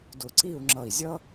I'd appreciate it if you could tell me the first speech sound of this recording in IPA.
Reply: d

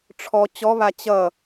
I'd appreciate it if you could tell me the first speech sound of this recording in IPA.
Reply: ʈ͡ʂʰ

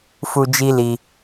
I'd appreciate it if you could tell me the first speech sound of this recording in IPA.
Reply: f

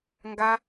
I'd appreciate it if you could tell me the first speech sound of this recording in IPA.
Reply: ŋ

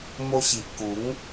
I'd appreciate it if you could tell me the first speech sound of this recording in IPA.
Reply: m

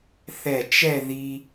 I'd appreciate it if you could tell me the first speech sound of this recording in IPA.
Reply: θ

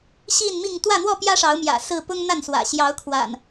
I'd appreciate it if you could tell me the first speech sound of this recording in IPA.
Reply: ɕ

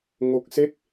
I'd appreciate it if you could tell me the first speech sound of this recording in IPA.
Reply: ŋ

